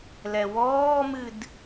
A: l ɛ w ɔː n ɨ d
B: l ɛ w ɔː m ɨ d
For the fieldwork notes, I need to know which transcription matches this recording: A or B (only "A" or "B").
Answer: B